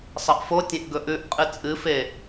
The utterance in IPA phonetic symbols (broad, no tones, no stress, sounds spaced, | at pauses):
sˤ ɐ ʔ f o tʲ ẽ ʔ ɡ ɵ ʔ ʉ ʔ qʼ ɨ t͡sʼ ɨ f e